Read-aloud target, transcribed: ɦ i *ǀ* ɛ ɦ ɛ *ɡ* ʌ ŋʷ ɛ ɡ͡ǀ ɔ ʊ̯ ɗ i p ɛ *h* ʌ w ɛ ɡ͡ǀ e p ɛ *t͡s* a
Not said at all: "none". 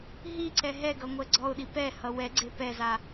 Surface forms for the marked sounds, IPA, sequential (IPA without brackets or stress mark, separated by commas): ǀ, ɡ, h, z